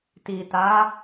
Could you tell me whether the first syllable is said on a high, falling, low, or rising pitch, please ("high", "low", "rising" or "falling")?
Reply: low